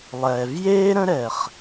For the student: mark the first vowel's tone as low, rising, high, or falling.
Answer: low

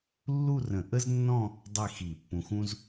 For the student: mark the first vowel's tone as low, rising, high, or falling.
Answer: falling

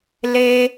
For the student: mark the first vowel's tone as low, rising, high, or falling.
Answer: high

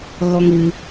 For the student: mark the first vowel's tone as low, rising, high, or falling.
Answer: high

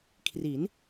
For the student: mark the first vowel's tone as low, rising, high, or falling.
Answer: rising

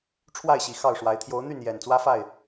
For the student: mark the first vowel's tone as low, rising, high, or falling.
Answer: falling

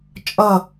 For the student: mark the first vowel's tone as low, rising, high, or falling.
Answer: falling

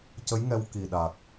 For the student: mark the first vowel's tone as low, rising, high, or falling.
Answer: rising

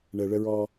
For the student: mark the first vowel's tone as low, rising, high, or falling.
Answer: low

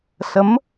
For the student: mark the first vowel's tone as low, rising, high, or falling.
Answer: rising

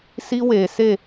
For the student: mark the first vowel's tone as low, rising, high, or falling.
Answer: high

